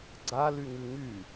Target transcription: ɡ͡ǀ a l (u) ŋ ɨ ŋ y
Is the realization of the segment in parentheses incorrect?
yes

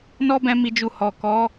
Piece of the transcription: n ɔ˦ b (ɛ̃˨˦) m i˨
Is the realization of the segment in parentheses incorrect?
yes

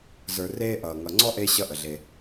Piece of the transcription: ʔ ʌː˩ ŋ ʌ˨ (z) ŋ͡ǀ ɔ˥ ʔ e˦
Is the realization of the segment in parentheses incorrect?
yes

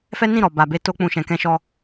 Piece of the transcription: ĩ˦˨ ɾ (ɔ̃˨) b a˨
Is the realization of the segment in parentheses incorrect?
yes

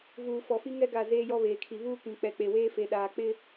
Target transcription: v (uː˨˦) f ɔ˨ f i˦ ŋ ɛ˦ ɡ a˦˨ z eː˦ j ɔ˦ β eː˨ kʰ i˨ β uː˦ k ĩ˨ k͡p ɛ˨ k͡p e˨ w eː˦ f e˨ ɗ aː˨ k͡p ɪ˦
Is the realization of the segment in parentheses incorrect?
yes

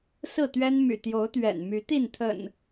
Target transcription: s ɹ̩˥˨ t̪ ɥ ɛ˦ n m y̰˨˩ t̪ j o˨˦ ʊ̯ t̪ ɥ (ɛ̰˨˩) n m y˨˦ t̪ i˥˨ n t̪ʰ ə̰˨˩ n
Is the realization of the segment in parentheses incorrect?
no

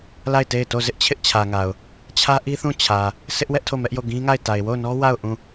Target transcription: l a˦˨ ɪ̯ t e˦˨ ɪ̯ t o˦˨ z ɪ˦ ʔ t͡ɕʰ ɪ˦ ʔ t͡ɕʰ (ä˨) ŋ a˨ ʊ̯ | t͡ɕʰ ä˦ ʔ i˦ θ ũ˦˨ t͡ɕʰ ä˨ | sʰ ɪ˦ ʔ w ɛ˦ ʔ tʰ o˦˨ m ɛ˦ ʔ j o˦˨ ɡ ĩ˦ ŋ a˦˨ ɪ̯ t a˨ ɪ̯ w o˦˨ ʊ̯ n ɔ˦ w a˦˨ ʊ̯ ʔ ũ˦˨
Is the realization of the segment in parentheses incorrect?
no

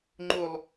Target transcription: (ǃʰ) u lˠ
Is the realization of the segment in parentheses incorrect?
yes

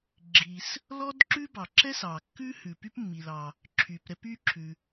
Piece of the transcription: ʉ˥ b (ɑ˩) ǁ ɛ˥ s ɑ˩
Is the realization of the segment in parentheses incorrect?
no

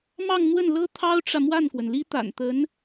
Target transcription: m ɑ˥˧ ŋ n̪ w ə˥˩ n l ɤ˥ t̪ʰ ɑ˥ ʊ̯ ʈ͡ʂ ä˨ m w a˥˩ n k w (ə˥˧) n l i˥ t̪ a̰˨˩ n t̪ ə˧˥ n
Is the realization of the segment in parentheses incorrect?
yes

